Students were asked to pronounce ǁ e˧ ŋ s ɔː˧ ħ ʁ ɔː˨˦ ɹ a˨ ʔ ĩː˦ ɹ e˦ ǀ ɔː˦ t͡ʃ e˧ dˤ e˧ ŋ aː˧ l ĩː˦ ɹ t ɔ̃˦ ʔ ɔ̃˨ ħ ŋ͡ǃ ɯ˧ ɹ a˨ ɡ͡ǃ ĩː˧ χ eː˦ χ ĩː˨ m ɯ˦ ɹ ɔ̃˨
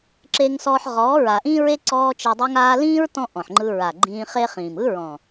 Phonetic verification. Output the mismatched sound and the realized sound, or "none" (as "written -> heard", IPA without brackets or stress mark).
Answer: none